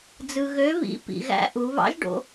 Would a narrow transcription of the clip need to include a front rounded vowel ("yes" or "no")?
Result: yes